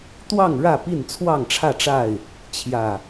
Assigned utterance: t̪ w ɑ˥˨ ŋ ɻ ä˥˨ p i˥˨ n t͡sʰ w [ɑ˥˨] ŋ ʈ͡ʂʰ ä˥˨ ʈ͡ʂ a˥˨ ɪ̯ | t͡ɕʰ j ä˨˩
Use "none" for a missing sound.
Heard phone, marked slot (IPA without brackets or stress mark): ɑ˥˨